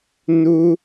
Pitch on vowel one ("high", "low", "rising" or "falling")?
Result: high